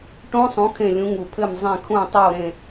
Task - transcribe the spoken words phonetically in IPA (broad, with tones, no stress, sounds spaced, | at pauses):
ʈ õ˦˥ sˤ ũ˨˦ kʰ ẽ˦˨ lʲ ũ˨˦ ŋ u˨˩ pʰ ɘ˦˨ m zˤ ẽ˦˨ kʰ ũ˦˨ tˤ o˦˨ ɾ ẽ˦˨